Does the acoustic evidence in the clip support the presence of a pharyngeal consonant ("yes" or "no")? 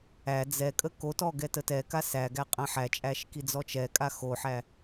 yes